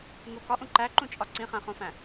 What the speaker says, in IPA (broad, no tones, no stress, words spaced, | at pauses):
ŋu kɒʔũ ǃæǃũt͡ʃʼɒ ǀĩχæ̃χõfæ̃